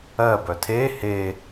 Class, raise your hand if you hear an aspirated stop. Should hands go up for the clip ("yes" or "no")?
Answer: yes